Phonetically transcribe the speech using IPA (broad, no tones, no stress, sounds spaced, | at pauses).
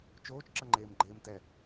t͡ʃ oː t͡ʃ ǁ ʌ ŋ͡ǃ eː m ɡ͡ǃ eː m t ɛ